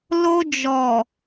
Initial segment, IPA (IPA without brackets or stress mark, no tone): l